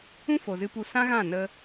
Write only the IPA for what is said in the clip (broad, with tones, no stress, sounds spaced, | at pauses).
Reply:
ũ˦ f o˨ z ɨ˧ p u˧ s ã˦ ɣ ã˦˨ n ə˦